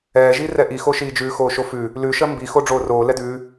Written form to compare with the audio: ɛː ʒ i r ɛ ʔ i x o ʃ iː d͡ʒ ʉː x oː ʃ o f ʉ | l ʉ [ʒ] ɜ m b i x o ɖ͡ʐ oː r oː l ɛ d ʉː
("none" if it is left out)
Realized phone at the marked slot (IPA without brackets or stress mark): ʃ